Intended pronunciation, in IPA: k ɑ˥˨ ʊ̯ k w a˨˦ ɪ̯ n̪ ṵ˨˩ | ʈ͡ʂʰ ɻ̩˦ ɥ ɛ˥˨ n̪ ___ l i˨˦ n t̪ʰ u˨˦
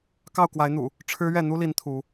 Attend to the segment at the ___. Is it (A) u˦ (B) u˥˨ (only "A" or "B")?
A